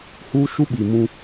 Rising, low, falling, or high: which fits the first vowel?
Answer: high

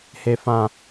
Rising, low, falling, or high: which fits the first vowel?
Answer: low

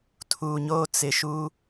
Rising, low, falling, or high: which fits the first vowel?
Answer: low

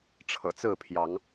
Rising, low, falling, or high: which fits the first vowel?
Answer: low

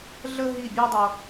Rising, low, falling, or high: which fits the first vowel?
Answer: high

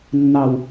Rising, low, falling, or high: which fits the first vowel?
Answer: high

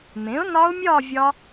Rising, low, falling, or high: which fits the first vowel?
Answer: rising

